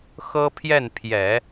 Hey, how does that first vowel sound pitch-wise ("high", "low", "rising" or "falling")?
high